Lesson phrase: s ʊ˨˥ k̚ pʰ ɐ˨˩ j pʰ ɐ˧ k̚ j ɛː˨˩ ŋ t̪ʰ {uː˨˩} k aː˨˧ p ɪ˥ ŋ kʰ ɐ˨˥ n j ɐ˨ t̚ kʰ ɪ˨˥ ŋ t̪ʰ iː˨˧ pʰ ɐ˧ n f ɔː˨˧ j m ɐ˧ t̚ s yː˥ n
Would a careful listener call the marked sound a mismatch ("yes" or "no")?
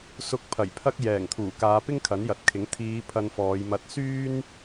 no